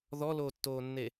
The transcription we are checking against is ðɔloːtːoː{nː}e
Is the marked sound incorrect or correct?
correct